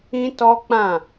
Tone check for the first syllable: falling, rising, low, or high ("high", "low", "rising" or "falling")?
high